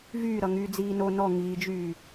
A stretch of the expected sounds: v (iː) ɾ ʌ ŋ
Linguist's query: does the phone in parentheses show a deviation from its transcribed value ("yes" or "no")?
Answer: yes